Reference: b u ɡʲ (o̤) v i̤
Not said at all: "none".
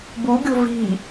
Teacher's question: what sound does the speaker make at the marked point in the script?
o̤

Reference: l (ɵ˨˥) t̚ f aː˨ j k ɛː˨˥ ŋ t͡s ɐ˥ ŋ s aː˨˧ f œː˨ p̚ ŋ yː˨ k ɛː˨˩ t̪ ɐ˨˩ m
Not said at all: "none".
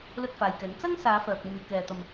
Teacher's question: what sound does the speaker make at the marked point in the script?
ɵ˥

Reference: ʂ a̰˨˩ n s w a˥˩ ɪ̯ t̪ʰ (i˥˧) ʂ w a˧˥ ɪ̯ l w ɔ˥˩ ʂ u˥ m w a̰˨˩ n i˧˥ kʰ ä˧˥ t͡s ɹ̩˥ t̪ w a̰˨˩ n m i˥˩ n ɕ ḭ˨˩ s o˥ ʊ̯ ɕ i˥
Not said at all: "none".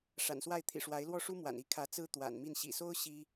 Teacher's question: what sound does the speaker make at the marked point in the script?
ḭ˨˩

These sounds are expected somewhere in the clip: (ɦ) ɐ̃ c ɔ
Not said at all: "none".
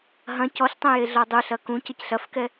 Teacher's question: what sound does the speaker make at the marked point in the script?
ɦ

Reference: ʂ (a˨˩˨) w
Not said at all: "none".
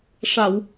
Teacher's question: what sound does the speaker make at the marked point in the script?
a˨˩˨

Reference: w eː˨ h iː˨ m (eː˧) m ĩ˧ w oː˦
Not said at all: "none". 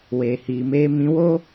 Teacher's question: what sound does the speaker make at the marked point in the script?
eː˧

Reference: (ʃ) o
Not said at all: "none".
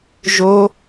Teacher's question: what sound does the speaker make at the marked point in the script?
ʒ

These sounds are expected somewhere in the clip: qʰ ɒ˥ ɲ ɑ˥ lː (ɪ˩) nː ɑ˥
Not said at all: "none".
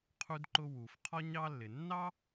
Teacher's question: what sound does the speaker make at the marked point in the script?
ɪ˩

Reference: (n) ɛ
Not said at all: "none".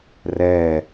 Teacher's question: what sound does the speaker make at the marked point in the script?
r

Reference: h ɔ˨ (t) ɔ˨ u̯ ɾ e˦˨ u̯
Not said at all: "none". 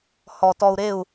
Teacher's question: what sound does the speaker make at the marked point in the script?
t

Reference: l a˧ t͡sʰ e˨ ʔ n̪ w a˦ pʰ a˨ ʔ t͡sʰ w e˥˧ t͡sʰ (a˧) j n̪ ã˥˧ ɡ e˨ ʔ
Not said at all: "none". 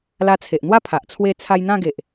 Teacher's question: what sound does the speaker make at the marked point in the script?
a˧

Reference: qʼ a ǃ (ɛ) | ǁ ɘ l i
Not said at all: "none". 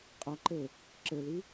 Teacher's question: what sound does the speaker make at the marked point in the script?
ɘ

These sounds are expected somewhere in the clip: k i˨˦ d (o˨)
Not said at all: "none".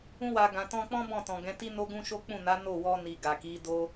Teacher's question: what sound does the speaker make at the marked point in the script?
o˦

